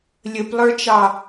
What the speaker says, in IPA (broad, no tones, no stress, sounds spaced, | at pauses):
lʲ ə p lˠ ə˞ t͡ʃ ɑ